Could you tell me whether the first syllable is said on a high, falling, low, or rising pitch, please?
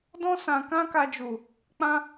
high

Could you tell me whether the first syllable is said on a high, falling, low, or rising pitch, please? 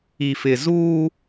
low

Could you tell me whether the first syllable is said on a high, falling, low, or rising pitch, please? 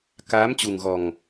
rising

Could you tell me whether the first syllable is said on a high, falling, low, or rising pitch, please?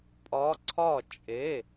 rising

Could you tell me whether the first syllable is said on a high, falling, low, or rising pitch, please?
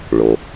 low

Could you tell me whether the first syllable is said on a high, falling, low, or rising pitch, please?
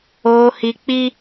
high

